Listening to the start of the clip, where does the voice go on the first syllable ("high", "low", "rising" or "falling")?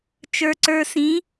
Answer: low